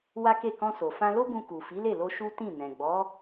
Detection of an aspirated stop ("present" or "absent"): absent